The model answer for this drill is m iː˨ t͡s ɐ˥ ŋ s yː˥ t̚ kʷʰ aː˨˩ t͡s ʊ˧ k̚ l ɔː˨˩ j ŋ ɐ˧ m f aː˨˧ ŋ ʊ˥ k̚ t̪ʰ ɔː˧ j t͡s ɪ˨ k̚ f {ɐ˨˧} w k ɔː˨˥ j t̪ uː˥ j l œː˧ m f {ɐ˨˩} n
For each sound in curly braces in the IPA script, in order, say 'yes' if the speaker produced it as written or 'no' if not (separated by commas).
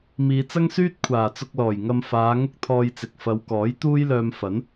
yes, no